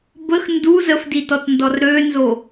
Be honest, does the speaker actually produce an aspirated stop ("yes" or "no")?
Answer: no